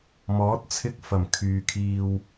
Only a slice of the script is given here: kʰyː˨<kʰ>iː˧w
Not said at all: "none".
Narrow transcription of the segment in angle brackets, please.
kʰ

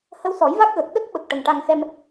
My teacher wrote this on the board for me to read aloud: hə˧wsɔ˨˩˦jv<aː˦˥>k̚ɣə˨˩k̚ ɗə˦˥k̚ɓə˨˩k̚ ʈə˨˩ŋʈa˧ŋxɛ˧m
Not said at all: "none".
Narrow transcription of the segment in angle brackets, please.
a˦˥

